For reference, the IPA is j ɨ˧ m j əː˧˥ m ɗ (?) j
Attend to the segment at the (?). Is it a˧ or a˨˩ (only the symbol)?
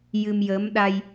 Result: a˧